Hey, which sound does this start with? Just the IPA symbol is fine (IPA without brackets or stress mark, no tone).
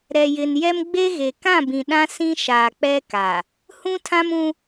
ɾ